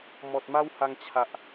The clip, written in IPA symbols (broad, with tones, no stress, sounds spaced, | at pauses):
m ɔ˨ t̚ m a˦ w h a˧ ŋ t͡ɕʰ a˨ ʔ